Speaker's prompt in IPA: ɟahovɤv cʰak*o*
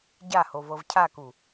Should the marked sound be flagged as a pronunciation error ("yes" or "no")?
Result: yes